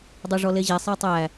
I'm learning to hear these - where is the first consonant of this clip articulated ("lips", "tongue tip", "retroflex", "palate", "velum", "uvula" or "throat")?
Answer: tongue tip